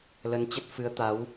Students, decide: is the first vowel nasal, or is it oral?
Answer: oral